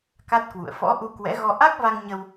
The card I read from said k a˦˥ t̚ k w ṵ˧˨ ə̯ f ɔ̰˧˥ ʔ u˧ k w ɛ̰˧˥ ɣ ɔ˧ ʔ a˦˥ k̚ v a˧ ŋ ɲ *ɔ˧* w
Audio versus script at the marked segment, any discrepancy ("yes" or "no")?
yes